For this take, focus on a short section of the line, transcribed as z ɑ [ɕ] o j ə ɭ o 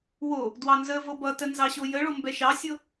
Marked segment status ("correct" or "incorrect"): correct